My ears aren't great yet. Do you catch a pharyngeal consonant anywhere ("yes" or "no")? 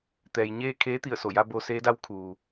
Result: no